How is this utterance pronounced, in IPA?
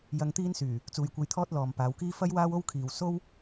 j ɐ˧ ŋ t̪ iː˥ n s yː˨˩ | t͡s uː˨ j kʷ ɐ˧ j t̪ʰ ɔː˥ t̚ l ɔː˨ m p aː˨˧ w k iː˥ f ɐ˥ j w aː˥ w o˥ w kʰ iː˨ w s o˥ w

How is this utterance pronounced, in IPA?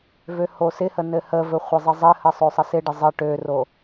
v ø h o s ɪ h ə n ɘ h ə v ɘ χʷ ɪ zˤ ɪ zˤ ɘ h ə sˤ ø sˤ ə s ɪ ɖ ɪ zˤ ə ʈ ø r o

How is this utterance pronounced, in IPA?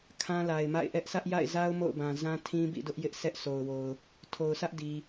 kʰ ã˦ l a˨ ɪ̯ m a̰˦˨ ɪ̯ ʔ ɛ˦ ʔ s ä˦ ʔ j a̰˦˨ ɪ̯ z a˦ ʊ̯ m o̰˦˨ ʊ̯ b ã˨ z ã˦ tʰ ĩ˦ b ḭ˦˨ d ʊ˦ ʔ j ɪ˦ ʔ sʰ ɛ˦ ʔ s o˨ ʊ̯ w o˨ ʊ̯ | tʰ o˨ ʊ̯ sʰ ä˦ ʔ d i˨

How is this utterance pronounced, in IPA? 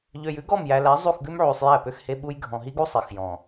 ʎ ø˨ j ʉ˦ ɡ ɔ˦˨ m j æ˨ l æ˨˦ zˤ u˦˨ x ɡ ʉ˦ m ʕ y˨ sˤ j æ˦˨ p ø˦ x h e˦ ɓ u˦ j ɡʱ ɔ̃˨ ɦ i˦ ɡ u˦ sˤ e˨ x j ɔ̃˨

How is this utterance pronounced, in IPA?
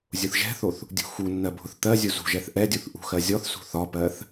zʲ ʊ θ ʒ ɛ̤ θ o θ | dʲ ṳ x u nː ɜ bʱ ʊ θ t̪ ɜ zʲ u z ṳ ʒ ɛ θ ʔ ɛ dʲ u θ ʔ ṳ x ɜ zʲ ɔ θ s ṳ θ ɒ p ɜ θ

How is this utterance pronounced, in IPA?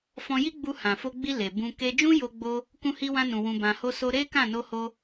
f ɔ̃˧ j i˦ ɡ͡b u˧ h ã˨ f o˧ ɡ͡b i˧ l e˨ b ũ˧ k e˧ d͡ʒ ũ˦ j o˧ ɡ͡b o˧ | k ũ˧ h i˧ w ã˧ n ũ˨ w ũ˧ b ã˧ h o˦ s o˦ ɾ e˦ k ã˦˨ n o˧ h o˧

